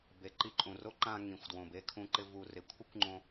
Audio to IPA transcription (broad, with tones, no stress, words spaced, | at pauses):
be˨ǃi˧ǃʼũ˨ro˦ ǃã˧ ŋĩ˨xʷ dwõ˨be˧kʰũ˧ǃɪ˧ vu˨rɪ˨kʷʰɪ˦kʷŋ͡ǃõ˧